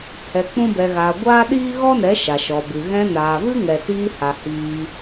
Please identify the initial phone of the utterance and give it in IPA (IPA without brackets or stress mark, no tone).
h